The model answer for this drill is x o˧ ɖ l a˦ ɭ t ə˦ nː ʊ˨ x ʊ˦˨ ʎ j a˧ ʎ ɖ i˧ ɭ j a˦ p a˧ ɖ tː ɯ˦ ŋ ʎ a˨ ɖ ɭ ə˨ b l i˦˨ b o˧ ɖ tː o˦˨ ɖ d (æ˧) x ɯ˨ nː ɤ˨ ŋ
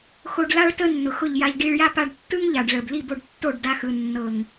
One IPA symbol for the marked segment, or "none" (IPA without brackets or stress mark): a˧